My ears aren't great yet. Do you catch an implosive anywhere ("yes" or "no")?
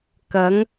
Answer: no